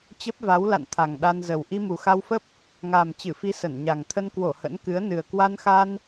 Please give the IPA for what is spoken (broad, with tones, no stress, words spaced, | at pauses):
t͡ɕə˦˥p̚va˨˦wla̰˧˨n t̪ʰa˨˩ŋɗa˧nzə˨˩w ʔi˧mu˨˩xa˧wfə˦˥p̚ | ŋaː˨˩mt͡ɕɨ˧˩fi˨˦ sə˧˩nɲa˨˩ŋ t̪ʰə˧nkwo˧˩ hə̰˧˥nkɨ˨˦ə̯nɨ˨˩ə̯ kwa˧nxa˧n